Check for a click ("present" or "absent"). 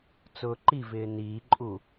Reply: present